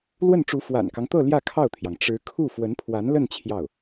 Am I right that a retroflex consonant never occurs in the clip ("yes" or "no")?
no